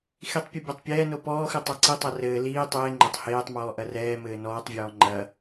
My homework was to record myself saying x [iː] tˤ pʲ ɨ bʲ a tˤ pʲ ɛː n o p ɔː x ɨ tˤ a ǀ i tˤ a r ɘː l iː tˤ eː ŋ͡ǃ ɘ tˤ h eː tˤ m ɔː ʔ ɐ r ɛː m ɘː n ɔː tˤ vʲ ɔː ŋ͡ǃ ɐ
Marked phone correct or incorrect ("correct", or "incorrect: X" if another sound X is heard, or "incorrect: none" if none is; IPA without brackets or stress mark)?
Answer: incorrect: i